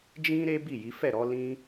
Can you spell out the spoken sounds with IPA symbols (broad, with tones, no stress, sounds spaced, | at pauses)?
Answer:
d͡ʒ ĩ˦ ɾ e˦ b i˦˨ j i˨˦ f ɛ˦˨ ɾ ɔ˨˦ l ĩ˦